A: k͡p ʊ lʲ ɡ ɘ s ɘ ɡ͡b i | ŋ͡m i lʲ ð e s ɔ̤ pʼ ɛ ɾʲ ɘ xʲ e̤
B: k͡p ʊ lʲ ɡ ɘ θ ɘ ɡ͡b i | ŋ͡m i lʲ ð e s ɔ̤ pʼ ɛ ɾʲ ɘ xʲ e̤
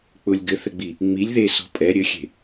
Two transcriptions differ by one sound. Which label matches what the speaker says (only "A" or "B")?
B